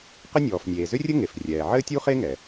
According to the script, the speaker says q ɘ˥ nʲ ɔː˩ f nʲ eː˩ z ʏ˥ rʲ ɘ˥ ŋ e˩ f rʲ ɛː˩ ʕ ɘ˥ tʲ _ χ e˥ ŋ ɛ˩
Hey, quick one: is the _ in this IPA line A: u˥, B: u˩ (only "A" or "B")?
A